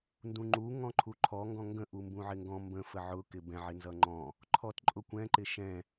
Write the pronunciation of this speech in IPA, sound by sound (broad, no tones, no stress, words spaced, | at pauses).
ndũŋ͡ǃu ŋɔ̃ǃʰuǃʰɔ ŋɡɔ̃ŋɡə̃ ʔumbũʕɪŋɡɔ̃ mbə̃ fəʕʊ kɪbɛ̃ ʕɪnzʌŋ͡ǃɔ̃ | ǃʰɔtǃʼʊkʷɛ̃ ǃɪʃɛ̃